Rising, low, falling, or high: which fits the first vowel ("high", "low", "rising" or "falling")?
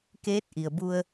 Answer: rising